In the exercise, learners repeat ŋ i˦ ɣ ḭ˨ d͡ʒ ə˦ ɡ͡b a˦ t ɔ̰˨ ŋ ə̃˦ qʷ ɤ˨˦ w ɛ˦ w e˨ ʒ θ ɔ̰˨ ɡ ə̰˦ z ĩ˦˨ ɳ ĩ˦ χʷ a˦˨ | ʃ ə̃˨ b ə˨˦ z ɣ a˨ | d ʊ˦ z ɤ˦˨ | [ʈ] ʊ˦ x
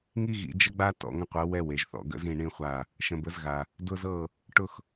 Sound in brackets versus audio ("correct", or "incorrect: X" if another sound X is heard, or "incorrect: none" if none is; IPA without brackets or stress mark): correct